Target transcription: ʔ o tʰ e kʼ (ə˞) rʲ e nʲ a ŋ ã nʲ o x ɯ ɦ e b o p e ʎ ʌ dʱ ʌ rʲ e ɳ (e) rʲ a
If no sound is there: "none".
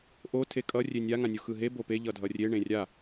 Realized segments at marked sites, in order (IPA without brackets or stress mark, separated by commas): ʌ, ẽ